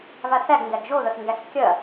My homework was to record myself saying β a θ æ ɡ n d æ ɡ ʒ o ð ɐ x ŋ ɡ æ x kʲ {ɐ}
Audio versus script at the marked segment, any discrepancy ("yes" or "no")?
no